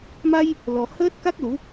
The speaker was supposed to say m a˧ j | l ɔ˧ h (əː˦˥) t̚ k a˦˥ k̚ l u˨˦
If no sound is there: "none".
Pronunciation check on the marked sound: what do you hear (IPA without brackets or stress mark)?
əː˦˥